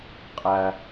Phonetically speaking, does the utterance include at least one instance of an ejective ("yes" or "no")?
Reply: yes